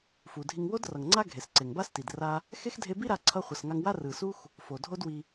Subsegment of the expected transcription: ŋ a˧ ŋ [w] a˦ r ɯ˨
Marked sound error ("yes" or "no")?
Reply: no